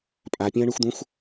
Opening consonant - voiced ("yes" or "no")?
no